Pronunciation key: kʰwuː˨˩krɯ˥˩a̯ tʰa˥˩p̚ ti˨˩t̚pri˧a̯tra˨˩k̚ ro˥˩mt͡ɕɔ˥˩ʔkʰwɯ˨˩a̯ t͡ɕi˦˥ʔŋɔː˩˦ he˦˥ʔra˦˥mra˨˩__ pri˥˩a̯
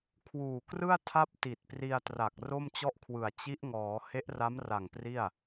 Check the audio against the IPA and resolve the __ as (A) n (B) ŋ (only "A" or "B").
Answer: B